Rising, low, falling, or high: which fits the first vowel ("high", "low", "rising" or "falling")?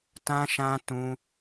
high